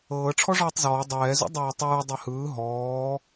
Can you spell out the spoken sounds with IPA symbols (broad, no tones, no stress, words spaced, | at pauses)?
ɤː ʈ͡ʂʰɔʐɔːtˤzɔː dˤɛːzṵ dˤɛːtˤɯː dˤɛhɯː ɦɔː